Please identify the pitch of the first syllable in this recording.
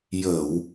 low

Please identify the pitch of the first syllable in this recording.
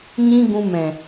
high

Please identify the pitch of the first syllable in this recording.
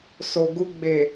low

